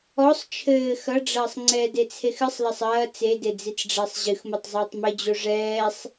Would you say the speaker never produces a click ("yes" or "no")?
no